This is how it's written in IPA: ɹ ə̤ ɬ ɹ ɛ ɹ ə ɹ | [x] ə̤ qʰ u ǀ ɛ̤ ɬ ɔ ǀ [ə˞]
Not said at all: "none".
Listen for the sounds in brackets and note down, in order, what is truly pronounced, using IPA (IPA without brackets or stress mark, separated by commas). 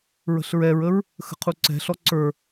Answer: x, ə˞